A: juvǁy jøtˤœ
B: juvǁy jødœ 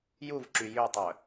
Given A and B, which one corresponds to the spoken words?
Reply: A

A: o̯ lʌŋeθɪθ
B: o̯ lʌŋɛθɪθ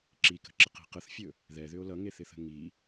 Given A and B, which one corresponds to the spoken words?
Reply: A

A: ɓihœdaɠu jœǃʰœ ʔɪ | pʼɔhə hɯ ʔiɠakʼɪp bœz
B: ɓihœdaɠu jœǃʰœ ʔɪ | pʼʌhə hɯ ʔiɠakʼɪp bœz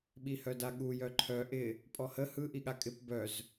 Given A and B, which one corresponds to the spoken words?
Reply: A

